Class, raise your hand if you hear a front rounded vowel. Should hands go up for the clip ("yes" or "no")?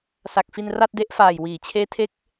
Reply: no